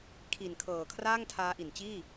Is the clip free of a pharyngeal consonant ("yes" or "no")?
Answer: yes